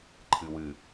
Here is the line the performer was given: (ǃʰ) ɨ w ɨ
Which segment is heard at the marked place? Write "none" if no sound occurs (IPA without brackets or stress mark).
ǃʰ